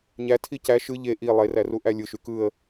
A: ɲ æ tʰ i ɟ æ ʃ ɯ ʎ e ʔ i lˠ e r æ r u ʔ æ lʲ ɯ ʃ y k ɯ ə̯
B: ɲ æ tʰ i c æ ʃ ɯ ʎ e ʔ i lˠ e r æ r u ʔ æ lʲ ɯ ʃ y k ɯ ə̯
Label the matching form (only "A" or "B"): B